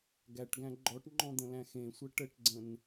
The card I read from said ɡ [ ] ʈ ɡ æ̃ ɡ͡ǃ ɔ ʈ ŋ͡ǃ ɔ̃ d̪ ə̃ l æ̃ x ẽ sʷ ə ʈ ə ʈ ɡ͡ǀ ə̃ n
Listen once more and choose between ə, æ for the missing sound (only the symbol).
æ